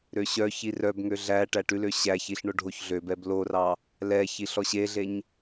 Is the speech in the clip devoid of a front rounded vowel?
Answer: no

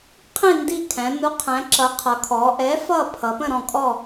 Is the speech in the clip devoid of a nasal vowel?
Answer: no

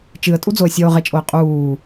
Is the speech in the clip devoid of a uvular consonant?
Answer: no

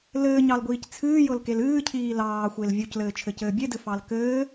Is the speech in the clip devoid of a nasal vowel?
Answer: yes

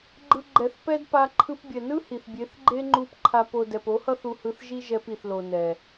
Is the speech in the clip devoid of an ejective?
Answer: yes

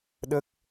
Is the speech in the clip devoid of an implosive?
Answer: no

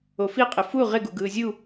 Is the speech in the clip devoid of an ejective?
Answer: no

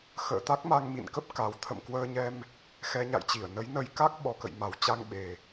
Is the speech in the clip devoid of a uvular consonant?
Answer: yes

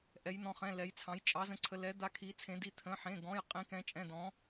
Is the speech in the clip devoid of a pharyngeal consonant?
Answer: no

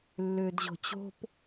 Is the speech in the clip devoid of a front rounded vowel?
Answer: no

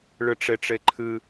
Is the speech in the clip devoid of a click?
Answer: no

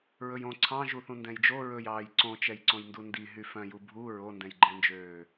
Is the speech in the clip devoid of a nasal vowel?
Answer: no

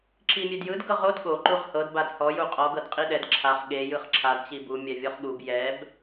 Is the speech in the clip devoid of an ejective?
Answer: no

